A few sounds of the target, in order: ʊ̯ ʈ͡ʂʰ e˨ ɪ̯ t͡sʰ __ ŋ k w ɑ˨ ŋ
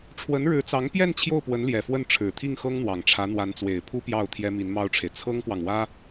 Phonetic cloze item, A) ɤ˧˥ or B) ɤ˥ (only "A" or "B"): B